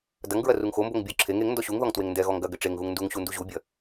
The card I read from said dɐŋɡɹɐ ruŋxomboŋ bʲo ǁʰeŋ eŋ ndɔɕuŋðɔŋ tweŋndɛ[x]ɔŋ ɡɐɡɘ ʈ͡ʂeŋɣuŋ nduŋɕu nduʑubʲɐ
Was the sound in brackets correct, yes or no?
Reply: no